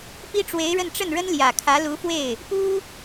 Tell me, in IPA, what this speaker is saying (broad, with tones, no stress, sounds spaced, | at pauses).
p i˥ ʈ͡ʂ w e˧˥ ɪ̯ ɻ ə˥˧ n ʈ͡ʂ ə˥˩ n ɻ ə˥ n l j ä˨˩ kʰ ä˧˥ l u˧˥ f w e˥˩ ɪ̯ | p u˥